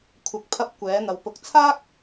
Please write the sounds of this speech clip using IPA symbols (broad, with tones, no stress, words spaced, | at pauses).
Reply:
kʷʰɐ˨k̚pʰɐ˧p̚ kʷɛː˨˥n̪ɐ˨˧w pʊ˨k̚t͡sʰaː˥k̚